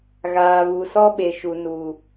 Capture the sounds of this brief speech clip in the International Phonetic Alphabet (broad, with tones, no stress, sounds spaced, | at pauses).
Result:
ɣ aː˨ v u˨ s ɔ˦ ɓ e˨ ʃ u˨ n u˨